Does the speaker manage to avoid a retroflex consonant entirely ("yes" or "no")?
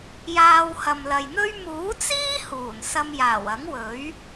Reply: yes